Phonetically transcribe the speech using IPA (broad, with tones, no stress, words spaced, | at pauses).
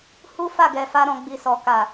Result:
hu˦fa˦˨ɡɛ˨fa˧ ɾɔ̃˧ɡ͡bi˧sɔ˨ka˨